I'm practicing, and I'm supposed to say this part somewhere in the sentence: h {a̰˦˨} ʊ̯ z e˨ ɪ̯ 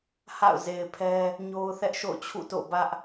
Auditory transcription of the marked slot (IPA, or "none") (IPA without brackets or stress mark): a̰˦˨